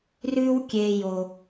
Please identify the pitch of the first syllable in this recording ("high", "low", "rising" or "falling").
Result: high